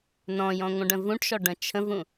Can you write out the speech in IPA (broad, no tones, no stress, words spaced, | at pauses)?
nɔ̃jɔ̃ ŋʷə̃ɖə̃vũʈʃɔ ɖə̃t͡ʃʰə̃vũ